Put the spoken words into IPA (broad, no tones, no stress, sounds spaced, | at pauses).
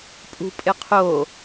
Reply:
pʼ ṳ pʼ ɪ qʰ o